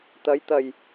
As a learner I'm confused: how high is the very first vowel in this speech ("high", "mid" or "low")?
low